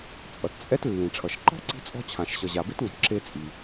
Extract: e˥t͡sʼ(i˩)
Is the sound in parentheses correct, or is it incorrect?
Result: correct